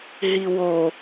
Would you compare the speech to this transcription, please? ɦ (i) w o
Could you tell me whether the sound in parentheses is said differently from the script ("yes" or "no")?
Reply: no